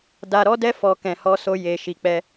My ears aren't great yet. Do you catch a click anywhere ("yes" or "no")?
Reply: no